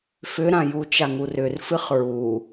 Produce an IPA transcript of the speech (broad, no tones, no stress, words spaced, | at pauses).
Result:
fʏɾãju t͡ʃaŋurʏr fɨχɹu